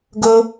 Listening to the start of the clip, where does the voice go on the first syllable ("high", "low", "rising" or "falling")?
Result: high